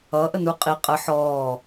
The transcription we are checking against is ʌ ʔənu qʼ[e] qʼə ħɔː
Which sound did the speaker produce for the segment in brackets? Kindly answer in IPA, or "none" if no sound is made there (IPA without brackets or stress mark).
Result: i